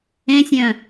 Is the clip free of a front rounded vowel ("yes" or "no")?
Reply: no